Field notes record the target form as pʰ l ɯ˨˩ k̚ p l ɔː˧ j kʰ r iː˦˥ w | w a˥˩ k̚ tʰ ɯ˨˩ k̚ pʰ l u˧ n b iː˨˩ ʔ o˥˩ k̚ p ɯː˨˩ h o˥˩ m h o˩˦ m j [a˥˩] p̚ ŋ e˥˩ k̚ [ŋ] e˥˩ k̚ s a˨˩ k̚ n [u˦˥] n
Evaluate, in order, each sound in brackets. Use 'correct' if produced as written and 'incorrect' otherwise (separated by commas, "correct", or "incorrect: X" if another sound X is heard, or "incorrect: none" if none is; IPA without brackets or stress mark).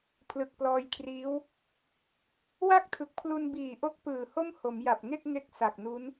incorrect: a˨˩, correct, correct